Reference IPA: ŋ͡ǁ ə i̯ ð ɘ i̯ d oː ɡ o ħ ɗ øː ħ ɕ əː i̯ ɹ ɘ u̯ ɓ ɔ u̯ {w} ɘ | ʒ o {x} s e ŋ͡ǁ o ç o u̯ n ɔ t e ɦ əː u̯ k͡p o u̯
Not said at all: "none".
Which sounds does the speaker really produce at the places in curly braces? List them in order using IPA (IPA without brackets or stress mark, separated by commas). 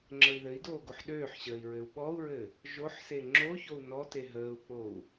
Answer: ɹ, ħ